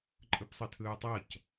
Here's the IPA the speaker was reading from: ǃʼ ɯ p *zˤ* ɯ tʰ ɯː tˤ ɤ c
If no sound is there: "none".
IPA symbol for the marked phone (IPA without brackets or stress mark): sˤ